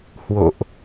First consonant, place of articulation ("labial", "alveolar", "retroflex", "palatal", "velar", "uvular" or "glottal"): glottal